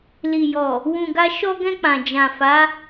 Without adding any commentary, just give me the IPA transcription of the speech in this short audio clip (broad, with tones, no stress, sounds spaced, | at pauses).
l i˨ j ɔ˨ | w ũ˨ ɡ a˧ ʃ ɔ˧ ɡ ɛ̃˧ k͡p ã˨ d͡ʒ ã˨ f a˨˦